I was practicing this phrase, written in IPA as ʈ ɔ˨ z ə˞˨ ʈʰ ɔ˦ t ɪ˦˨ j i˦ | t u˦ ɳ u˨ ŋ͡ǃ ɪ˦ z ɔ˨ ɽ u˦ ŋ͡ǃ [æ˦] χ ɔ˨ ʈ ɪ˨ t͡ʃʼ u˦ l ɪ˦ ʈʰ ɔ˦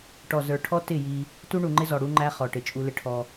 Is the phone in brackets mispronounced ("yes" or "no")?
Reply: no